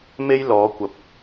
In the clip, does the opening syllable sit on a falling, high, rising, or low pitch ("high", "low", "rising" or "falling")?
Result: high